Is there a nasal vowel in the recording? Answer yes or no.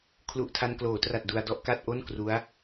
no